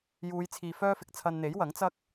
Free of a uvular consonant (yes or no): yes